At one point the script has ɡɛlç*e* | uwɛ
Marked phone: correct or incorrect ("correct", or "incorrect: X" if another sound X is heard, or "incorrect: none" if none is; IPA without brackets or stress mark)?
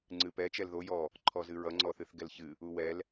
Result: incorrect: ɨ